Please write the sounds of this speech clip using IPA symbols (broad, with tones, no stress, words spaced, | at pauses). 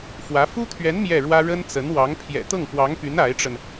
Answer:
fwä˧˥ fu˥t̪ʰɥɛ˧˥n mjɛ˥˩ɻwä˥ ɻə˥nt͡sə˧˥nwɑ˧˥ŋ pʰjɛ̰˨˩t̪ɤ˥˩ŋpwɑ˧˥ŋpy˧˥n a˧˥ɪ̯ʈ͡ʂə˧n